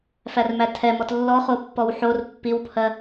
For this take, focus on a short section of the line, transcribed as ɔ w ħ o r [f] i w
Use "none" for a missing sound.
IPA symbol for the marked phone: pː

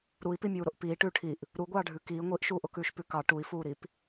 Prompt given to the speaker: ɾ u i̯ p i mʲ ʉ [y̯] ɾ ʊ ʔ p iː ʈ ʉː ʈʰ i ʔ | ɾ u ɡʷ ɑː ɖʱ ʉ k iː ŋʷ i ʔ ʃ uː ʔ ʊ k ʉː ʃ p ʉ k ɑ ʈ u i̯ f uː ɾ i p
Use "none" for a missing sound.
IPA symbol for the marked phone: u̯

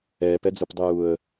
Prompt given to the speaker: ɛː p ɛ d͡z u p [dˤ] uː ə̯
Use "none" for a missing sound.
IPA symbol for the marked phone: dˤ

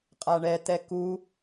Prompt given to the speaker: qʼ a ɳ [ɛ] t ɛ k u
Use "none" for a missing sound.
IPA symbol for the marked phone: ɛ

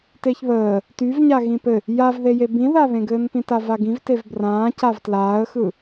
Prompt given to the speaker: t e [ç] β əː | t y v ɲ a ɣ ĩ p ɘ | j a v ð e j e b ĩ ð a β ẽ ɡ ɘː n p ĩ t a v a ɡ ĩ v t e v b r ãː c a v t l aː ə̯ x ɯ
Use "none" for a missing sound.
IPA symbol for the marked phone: ç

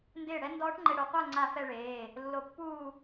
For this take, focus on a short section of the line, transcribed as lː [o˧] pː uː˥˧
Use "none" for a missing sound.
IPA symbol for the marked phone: o˧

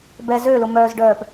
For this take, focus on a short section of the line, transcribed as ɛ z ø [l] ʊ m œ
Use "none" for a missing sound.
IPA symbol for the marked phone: l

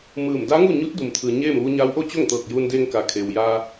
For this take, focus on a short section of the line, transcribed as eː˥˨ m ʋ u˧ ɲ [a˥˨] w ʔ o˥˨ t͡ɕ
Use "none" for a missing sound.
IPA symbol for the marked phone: a˧˥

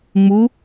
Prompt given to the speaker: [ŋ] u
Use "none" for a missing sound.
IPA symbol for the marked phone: ŋ͡m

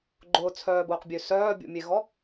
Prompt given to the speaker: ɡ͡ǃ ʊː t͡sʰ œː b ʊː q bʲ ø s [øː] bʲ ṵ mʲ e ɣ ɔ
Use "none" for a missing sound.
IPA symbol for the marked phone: œː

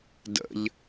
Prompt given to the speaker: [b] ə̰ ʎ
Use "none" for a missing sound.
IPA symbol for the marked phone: d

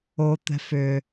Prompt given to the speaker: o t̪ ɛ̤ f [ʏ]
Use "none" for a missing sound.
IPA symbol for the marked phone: ʏ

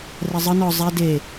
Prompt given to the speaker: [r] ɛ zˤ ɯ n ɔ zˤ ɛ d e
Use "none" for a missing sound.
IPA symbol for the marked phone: r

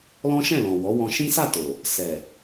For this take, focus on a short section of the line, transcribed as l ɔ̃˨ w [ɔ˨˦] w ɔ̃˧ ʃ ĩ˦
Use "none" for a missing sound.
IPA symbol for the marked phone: ɔ˨˦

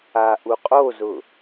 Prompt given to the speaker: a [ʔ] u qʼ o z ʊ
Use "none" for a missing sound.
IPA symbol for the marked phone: ʔ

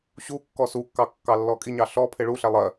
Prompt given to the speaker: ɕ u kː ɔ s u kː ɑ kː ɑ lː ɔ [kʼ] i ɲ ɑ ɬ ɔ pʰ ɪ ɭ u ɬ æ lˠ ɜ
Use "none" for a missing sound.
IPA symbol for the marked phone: kʼ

